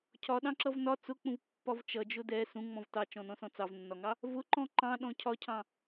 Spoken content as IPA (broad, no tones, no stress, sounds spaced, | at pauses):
cʰ ɒ ɗ ɑ̃ ǁ ʌ v n ɒ t͡s ʊ k͡p ũ v pː ɒ v t͡ʃ ʌ d͡ʒ ʊ d ɛ s ũ ŋ͡m ɔ̃ v t ɑ t͡ʃ ɔ̃ n ɔ̃ s ɔ̃ t͡s ɑ v nː ɒ ŋ ɑ | v ʊ ǃ ɔ̃ ǃ ɑ̃ ɗ ɔ̃ cʰ ɒ cʰ ɑ̃